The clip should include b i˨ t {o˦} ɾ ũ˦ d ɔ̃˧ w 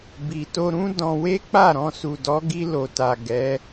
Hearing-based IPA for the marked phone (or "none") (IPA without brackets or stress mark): o˧